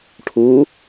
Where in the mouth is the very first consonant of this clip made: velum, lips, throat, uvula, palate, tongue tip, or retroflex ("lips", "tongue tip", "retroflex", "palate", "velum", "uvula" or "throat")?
retroflex